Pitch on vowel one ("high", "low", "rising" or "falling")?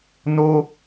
high